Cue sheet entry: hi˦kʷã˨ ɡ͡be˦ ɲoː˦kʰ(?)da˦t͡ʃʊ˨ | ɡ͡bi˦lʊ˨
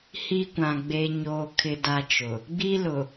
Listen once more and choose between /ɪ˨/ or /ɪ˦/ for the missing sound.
ɪ˦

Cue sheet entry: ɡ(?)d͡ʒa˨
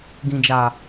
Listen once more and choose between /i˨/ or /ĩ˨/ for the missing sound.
ĩ˨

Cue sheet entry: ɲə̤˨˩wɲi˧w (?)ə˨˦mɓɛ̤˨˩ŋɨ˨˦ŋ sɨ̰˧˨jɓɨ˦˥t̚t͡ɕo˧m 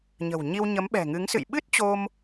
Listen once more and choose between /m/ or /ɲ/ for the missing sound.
ɲ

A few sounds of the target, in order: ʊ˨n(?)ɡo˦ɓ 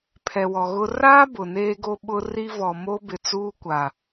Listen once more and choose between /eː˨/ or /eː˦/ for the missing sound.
eː˦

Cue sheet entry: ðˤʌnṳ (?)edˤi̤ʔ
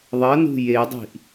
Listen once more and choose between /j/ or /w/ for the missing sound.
j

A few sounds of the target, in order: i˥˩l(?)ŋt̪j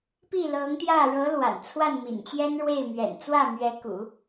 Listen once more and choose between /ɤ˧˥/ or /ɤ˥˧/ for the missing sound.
ɤ˧˥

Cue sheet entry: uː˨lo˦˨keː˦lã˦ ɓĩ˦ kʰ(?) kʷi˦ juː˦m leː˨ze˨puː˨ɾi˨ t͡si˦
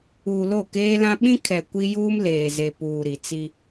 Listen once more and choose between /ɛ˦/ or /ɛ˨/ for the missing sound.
ɛ˨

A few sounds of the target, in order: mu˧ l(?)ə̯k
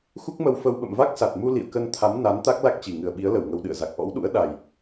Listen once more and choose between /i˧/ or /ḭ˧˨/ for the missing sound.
ḭ˧˨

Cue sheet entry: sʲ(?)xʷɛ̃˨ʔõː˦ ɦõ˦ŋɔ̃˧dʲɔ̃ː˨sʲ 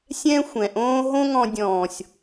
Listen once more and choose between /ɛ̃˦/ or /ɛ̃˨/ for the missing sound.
ɛ̃˦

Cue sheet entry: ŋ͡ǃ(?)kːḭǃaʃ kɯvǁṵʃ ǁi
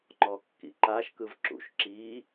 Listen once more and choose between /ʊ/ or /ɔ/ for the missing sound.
ɔ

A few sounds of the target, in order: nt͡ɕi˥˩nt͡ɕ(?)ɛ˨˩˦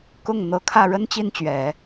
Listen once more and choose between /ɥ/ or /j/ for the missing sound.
ɥ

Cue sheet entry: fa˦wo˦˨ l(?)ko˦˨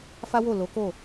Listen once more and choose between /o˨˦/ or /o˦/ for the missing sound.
o˨˦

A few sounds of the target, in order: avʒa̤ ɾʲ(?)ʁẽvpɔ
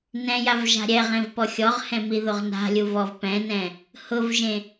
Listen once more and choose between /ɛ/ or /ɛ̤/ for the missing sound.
ɛ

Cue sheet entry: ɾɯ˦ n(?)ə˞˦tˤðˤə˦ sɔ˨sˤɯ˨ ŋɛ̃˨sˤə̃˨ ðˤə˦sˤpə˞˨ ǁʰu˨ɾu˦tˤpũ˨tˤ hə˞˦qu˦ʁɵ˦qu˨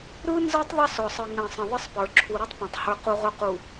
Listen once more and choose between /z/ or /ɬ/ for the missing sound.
z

